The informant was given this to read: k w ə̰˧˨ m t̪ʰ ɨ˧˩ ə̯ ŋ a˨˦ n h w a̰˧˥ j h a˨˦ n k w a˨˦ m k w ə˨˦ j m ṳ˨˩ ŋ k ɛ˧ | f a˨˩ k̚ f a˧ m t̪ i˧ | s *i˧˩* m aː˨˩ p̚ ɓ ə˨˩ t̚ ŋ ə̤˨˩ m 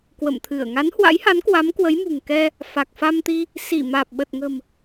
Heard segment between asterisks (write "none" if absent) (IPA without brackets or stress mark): i˧˩